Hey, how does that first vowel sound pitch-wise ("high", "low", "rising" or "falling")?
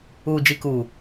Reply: low